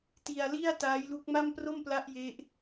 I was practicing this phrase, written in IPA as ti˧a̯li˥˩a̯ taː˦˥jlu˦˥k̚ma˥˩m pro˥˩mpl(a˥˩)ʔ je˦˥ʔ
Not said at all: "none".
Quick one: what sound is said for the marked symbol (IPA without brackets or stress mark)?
a˦˥